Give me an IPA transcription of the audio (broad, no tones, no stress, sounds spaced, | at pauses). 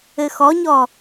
ɘ x ɔ ɲ ɔ